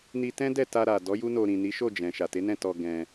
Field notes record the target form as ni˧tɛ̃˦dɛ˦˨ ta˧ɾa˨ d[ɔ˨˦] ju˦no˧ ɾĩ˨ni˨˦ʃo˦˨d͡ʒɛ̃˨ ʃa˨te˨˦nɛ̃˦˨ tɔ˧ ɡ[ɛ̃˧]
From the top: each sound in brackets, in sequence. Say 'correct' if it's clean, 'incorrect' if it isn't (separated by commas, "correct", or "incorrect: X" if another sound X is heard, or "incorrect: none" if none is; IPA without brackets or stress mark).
correct, correct